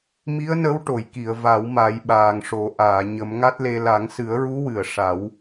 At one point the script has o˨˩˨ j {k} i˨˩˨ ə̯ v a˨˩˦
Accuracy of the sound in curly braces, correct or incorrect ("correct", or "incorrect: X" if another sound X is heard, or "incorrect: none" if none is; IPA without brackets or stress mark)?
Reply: correct